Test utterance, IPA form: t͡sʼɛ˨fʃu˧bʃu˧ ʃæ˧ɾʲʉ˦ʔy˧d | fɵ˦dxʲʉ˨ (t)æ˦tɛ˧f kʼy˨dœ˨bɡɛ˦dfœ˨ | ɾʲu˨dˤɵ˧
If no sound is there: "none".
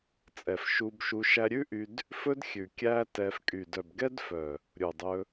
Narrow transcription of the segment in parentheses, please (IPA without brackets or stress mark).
kʲ